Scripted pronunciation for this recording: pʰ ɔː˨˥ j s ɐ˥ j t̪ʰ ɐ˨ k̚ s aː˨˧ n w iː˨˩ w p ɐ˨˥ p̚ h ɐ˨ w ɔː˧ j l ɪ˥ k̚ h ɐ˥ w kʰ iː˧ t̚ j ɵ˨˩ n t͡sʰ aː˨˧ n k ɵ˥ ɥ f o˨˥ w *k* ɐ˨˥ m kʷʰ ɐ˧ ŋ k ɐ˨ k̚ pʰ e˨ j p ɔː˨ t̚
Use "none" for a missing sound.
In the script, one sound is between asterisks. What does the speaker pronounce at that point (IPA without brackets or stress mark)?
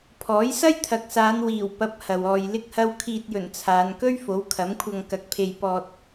kʰ